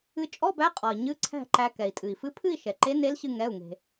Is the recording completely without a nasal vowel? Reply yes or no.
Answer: yes